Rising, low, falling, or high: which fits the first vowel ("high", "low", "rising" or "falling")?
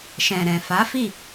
low